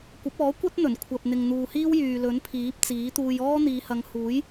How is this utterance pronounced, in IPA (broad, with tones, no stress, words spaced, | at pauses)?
kʷɐ˨˥p̚ɔː˨˥kʷɐ˥t̚ n̪ɵ˨˩n kʷʰɐ˨p̚n̪ɪ˨ŋn̪uː˨hiː˥w jyː˨lɵ˨˥n pʰiː˨˥p̚t͡siː˨˥t̪uː˧j ɔː˥ n̪iː˨˧hɐ˨˧ŋ huː˨˥j